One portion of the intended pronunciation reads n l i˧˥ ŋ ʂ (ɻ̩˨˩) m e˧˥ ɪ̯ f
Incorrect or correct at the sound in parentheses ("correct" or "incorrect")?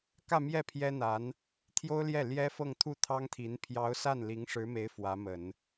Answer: incorrect